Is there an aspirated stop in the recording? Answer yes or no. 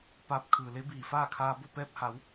yes